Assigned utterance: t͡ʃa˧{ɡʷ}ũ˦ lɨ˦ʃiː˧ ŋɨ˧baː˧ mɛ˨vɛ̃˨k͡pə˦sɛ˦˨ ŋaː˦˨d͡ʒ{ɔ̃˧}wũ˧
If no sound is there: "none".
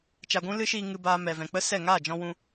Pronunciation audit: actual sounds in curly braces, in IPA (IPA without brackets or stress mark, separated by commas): ɡʷ, ɔ̃˧